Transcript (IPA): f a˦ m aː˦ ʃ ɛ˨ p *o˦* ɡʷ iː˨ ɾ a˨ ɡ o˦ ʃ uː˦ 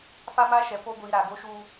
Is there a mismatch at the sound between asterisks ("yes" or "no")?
no